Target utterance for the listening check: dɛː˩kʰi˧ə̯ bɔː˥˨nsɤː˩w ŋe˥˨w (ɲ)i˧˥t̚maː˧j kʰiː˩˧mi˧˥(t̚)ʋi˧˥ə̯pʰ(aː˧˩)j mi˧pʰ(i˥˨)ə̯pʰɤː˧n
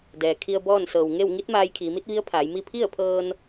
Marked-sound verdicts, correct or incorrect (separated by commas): incorrect, correct, incorrect, correct